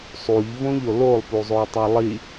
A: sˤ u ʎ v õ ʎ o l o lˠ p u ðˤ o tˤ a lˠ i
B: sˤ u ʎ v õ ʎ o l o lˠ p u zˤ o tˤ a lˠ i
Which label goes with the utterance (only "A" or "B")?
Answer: B